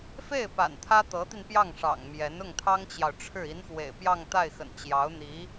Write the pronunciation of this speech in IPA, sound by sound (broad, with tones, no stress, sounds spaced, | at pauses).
f e˥˩ ɪ̯ p a̰˨˩ n t̪ʰ ä˥ t̪ ɤ˧˥ t̪ i˧ n p j ɑ˥˩ ŋ ʂ ɑ̰˨˩ ŋ m j ɛ˧˥ n ʊ˥˩ ŋ t̪ʰ ɑ˥ ŋ t͡ɕ j ɑ˨ ʊ̯ ʈ͡ʂʰ ɻ̩˥˩ i˧˥ n x w ḛ˨˩ ɪ̯ p j ɑ˥˧ ŋ t̪ a˥˩ ɪ̯ x ə̰˨˩ n t͡ɕ j ɑ˧˥ ʊ̯ n̪ i˧˥